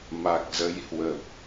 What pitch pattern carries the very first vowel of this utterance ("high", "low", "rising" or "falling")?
low